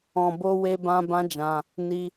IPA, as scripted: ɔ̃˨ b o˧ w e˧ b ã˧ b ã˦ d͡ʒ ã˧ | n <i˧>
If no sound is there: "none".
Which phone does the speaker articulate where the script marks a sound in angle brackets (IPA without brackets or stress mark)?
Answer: i˧